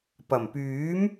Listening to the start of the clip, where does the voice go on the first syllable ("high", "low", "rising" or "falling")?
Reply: low